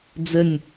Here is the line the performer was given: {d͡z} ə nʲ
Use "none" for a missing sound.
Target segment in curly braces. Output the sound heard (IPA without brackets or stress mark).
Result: d͡z